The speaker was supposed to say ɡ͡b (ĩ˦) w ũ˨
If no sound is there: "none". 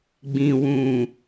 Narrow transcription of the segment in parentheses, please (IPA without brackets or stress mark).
ĩ˨